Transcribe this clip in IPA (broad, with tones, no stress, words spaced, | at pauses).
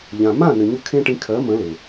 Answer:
ʎã˩ mã˥˩nɘ˩ ɲʏ˥˩kʰẽ˥ʈĩ˧ kʰɜ˩˥mə̃˩˥le˩